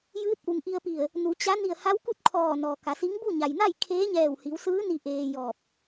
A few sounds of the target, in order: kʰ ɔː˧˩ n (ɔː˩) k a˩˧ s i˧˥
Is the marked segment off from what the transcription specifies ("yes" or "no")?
no